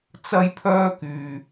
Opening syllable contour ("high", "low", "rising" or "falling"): high